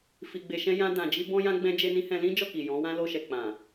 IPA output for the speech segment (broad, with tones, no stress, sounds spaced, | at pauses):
f i˧ ɡ͡b e˧ ʃ ɛ̃˦ j ã˦ d ã˧ d͡ʒ i˦ b ɔ̃˦ j ã˦ ɡ͡b ɛ̃˦ d͡ʒ e˦ n ĩ˦ h ɛ̃˧ l ĩ˦ d͡ʒ ɔ˦˨ k i˨ j ɔ̃˨˦ w ã˦ l o˧ ʃ ɛ˨ k͡p ã˨